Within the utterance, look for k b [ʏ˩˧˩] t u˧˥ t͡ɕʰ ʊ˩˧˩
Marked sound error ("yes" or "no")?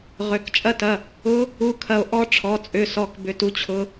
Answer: no